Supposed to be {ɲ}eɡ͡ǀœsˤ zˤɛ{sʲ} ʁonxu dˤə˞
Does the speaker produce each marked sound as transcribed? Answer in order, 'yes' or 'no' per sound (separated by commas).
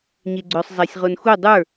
yes, yes